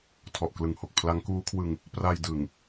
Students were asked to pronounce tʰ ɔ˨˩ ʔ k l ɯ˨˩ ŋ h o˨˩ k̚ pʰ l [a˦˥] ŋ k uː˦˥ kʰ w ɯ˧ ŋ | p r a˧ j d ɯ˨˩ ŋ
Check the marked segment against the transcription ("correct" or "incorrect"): correct